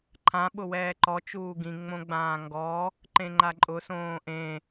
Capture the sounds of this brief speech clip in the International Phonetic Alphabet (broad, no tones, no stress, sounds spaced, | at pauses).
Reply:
ǃʰ ã ɓ ʊ w ɛː ǃ ɔ t͡ʃ uː ɡ ĩ ŋ͡m õ ɡ͡b ãː ŋ ɡ ɔ | ǃ ẽ ŋ͡ǃ a ǃʼ ʊ s õː ʔ ẽ